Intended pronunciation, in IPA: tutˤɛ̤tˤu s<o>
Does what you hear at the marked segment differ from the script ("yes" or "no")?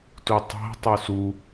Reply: yes